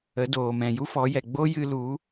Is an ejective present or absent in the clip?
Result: absent